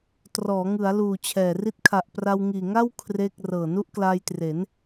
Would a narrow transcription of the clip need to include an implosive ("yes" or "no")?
no